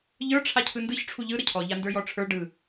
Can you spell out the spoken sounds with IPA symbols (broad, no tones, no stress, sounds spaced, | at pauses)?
ʎ ə˞ ʈ͡ʂʰ a cʰ ɯ n d ɯ ç ʈ͡ʂʰ u ʎ ɯ ɾ ə cʰ ɔ ʎ a n d ə˞ j ɔ ʈ͡ʂʰ ə˞ ɖ ɯ